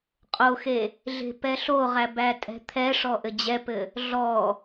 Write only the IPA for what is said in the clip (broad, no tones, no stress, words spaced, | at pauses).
qʼoxe | ɮe̤pɛɬoʁæ bætʼɛ̤t̪ʰɛʂɔ ʔɘd͡ʑɛpɘ | ɮɔ